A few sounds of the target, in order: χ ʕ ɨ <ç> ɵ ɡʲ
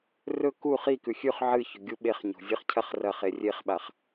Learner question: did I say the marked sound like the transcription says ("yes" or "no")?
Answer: yes